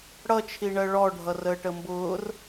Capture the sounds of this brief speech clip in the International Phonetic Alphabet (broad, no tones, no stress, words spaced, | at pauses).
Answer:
ɽʌt͡ʃʰiɳɜ ɭɔɖʱʌrəːʈ əmbʊːr